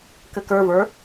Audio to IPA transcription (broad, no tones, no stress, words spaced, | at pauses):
kɘkə˞və˞